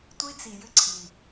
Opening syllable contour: high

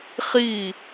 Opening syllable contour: falling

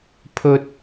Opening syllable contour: high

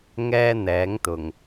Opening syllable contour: high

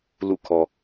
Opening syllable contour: falling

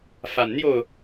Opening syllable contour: low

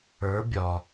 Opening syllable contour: rising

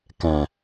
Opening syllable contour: low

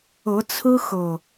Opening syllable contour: rising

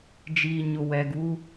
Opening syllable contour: low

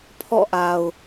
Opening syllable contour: falling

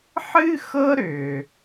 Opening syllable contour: high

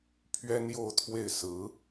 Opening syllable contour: high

